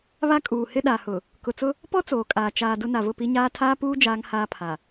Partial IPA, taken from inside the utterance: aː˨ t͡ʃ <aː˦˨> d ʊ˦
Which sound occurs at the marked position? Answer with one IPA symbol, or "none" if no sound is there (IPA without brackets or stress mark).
aː˨